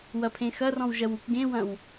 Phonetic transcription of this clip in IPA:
wɐpʰẽxɐrɔ̃w ʒɐwukɡẽwɐ̃w

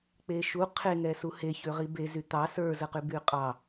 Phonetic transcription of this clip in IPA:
k͡peʃu qʰeŋɛsu heçø ʁibe zyt̪ɑ sə˞zəqy byqʼɑ

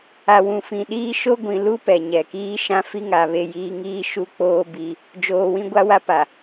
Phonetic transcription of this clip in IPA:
a˨wũ˨fĩ˨ɗiː˦ ʃo˦ɡʷĩ˨lu˦ pɛ˨ɲɛ˨ kiː˦ʃã˦ fi˦ŋa˨ βe˦˨jiː˦ ŋiː˦ ʃu˦k͡poː˦ bi˦ | d͡ʒoː˨wĩ˦ɡʷa˦wa˦ pa˨

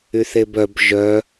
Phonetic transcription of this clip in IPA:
yθebœb ʒœ

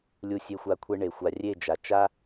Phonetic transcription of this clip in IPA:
lʲu˧sʲe˧xʷa˧ kʷʰe˧ɳe˨ xʷa˨rʲe˦˨d͡ʒa˨t͡ʃa˦

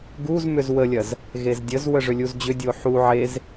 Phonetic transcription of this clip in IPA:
ɡuzmʏz wəlʲɐz | ɣezdʲəz wəʐʏlʲuzd͡ʑʏ dʲoħu ʕez

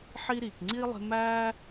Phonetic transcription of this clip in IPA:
ħi˦ ɾiː˨kŋ͡ǀiː˥lˠe̤˦mæː˥

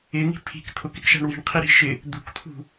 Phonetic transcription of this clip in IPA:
ɪŋi̤ pʰi̤k t̪ʰʊkɪkʃa̤ɳ wi̤ɳqʰiɾi̤ ʃɪ | d̪ṳkt̪ʰṳ

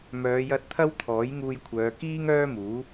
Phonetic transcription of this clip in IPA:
mœː˨˧jɐ˧t̚ t̪ʰɐ˥wt̪ʰɔː˨˥jŋuː˧jkʷʰœː˨˧ kiː˥ŋœː˥muː˨˥

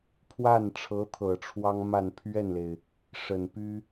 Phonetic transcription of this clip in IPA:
pʰwa˥˩nʈ͡ʂʰɤ˧˥ t̪ʰɤ˨˩ʈ͡ʂʰwɑ˥ŋma˥˧n pʰɥɛ˥˩nle˩ɪ̯ | ʂə˨˩npy˥

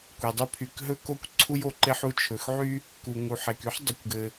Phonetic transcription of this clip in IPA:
kʷe˩dˤy˥ pʰy˩kɦɵ˥ ko˥kʷ ǀʰu˥jo˩ǃe˥ħ u˥t͡ʃʰɵ˩xʕy˥ | ku˩ŋu˩ħe˩k y˥ħ dˤɘ˩kʷɡɘ˩

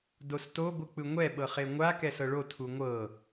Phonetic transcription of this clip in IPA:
dosto ɡʷɯk͡pɯŋʷɛ ɓɤχeŋʷa kɛsɤɭo tʰuŋʷɤ

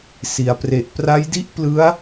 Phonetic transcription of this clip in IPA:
si˩˦a̯pre˨˩ʔ pra˦˥jdi˥˩ʔ plɯ˦˥a̯

